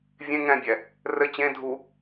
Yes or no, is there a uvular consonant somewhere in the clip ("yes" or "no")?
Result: no